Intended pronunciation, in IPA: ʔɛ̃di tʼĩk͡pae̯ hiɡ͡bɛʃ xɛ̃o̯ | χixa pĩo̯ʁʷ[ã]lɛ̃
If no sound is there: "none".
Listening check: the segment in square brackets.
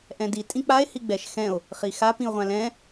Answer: ã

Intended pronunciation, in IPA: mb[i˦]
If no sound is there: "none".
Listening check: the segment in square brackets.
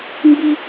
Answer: i˦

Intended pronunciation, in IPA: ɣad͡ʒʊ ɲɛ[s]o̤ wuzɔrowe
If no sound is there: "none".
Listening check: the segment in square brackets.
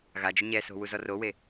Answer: s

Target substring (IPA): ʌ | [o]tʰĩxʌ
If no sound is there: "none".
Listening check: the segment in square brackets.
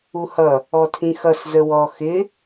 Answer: ɔ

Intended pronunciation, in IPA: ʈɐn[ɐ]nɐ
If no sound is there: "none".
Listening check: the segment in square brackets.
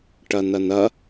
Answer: ɐ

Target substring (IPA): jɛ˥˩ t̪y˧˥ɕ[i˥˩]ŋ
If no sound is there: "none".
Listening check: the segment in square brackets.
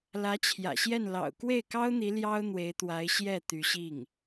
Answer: i˥˩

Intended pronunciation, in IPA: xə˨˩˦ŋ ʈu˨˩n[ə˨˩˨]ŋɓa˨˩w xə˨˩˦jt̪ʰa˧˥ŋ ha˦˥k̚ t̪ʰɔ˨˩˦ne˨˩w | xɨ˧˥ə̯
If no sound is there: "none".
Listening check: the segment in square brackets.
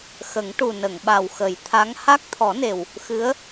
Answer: ə˨˩˨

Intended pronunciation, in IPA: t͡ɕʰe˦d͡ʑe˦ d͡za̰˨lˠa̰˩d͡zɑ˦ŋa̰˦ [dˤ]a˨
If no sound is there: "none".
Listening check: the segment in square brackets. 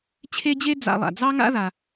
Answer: ð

